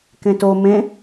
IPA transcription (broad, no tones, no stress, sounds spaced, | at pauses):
k ẽ t o m ẽ